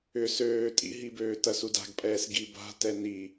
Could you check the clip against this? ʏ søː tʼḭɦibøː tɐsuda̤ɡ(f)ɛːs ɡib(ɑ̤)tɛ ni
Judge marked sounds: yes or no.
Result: no, no

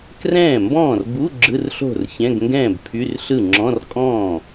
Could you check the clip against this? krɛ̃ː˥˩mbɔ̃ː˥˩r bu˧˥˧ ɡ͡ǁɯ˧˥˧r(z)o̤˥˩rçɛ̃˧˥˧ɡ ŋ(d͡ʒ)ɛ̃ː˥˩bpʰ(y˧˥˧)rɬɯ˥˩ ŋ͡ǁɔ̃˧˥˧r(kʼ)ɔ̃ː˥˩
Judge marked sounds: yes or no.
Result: no, no, yes, yes

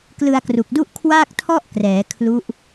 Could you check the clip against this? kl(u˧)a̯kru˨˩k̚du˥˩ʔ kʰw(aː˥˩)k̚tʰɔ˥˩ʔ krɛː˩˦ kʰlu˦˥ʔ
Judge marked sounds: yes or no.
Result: no, yes

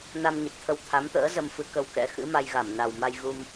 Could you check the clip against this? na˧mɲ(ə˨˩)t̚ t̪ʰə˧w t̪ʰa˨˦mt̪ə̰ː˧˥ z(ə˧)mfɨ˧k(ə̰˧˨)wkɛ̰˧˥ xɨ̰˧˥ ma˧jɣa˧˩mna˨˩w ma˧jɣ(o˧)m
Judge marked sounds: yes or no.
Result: yes, yes, no, no

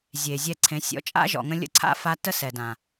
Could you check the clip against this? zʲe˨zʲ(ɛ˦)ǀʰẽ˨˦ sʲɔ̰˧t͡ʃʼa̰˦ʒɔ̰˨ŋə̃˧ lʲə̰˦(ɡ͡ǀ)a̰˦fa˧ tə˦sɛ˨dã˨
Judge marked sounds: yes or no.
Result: no, no

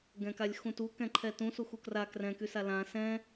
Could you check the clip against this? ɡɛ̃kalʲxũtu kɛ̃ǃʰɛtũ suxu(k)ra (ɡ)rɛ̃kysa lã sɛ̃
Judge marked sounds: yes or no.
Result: yes, no

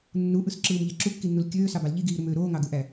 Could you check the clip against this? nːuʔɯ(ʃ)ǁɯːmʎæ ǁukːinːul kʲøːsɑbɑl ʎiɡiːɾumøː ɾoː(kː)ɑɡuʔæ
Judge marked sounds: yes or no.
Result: no, no

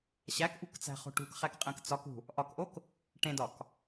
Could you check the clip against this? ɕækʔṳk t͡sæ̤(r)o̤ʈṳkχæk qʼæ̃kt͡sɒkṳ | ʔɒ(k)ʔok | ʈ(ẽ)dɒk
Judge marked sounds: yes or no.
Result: no, yes, yes

